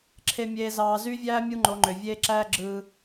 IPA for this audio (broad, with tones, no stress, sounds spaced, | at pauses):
ǁʰ e˨ mʲ eː˨ z ɑː˨ z y˦ vʲ æː˦ mʲ u˦ ŋ͡ǃ o˨˦ ŋ͡ǃ ø˨ vʲ eː˦ ǁ æː˦ ɡ͡ǁ ɯː˦